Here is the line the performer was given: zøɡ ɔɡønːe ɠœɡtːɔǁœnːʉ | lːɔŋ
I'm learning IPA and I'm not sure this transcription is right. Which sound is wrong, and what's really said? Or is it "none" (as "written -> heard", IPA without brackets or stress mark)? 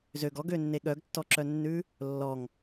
none